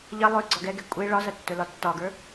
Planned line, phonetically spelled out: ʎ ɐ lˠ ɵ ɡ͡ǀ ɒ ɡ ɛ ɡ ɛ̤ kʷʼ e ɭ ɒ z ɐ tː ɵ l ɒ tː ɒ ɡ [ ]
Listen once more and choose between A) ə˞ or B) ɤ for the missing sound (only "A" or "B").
A